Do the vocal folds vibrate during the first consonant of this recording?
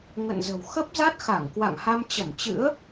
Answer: yes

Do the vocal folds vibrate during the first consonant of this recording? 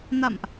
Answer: yes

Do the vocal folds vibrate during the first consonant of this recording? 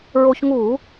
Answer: yes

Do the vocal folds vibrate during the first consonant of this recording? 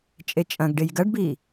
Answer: no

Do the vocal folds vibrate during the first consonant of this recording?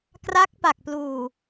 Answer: no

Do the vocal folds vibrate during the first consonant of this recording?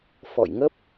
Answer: no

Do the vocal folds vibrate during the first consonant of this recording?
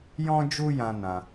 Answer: yes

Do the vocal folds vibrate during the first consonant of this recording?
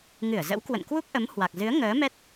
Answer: yes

